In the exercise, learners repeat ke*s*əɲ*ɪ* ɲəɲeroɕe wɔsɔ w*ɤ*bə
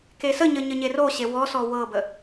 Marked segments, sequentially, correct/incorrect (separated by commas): correct, incorrect, correct